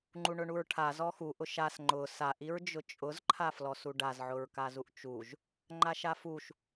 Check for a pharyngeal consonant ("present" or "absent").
present